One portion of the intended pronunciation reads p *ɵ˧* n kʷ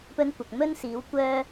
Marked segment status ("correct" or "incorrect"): incorrect